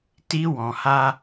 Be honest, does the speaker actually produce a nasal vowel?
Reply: yes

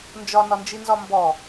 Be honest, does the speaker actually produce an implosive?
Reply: no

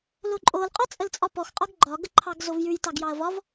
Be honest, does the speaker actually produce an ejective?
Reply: yes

